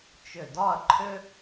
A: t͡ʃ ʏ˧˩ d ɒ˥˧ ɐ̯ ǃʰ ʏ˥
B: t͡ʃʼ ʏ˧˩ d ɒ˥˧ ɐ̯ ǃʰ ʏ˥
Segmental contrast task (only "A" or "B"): A